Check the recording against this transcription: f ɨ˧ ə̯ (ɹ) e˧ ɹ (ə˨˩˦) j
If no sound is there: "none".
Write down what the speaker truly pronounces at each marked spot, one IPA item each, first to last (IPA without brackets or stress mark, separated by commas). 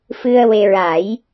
w, a˨˩˦